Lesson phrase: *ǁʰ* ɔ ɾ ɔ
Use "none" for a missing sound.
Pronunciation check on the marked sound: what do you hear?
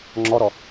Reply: ŋ͡ǁ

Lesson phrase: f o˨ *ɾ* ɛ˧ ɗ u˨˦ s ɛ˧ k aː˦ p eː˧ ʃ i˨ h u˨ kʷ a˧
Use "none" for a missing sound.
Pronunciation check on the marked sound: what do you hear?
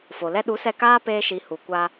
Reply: l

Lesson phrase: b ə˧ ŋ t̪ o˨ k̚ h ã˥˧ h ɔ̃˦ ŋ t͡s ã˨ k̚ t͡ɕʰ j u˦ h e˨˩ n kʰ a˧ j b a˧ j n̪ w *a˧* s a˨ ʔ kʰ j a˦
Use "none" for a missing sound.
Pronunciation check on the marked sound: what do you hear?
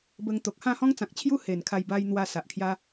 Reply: a˧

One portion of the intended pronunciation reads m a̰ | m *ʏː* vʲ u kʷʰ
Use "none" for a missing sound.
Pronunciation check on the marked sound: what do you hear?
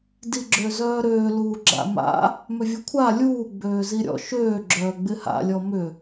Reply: ʏ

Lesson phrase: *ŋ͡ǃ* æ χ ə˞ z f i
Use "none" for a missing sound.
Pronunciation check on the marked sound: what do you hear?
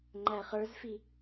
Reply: ŋ͡ǃ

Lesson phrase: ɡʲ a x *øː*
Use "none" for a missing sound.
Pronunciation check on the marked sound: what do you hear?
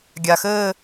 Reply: ɘː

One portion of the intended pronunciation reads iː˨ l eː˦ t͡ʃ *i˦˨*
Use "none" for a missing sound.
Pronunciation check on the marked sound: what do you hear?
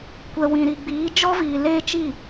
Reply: i˦˨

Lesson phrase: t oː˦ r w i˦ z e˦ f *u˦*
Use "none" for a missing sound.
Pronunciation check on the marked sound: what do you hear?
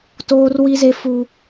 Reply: u˦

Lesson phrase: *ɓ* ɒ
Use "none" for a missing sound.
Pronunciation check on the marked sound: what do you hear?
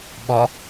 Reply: ɓ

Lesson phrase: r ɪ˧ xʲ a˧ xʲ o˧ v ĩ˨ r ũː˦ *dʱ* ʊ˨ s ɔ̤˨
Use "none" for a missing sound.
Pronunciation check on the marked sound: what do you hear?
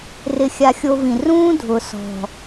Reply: dʱ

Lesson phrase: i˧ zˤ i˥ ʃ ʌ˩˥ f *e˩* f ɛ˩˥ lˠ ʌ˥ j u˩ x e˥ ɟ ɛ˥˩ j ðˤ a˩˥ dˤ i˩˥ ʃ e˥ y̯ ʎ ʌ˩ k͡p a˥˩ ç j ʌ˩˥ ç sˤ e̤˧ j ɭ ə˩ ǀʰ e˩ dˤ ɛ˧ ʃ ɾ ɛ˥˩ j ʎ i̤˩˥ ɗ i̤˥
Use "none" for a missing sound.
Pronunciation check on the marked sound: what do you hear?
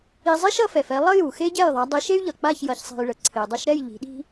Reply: ɛ˩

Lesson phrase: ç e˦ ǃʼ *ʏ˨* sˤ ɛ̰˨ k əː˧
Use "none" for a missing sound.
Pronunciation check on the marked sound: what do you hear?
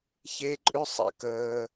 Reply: ʏ˦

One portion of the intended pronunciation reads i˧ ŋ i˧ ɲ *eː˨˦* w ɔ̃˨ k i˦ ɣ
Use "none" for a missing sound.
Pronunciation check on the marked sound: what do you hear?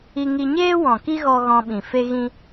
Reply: eː˦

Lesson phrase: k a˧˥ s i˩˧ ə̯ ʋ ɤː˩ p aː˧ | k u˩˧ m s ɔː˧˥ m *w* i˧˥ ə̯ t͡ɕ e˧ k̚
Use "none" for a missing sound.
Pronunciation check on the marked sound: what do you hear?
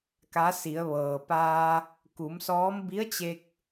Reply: b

